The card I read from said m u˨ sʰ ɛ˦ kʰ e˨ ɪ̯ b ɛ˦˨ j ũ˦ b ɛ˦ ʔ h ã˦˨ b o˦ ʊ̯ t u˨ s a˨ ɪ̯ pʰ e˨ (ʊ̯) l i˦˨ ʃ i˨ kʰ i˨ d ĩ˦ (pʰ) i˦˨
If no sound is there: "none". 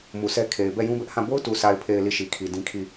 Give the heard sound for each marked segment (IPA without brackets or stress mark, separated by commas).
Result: ɪ̯, kʰ